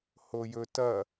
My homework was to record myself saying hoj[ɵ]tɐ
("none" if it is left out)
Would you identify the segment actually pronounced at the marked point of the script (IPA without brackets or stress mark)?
ɵ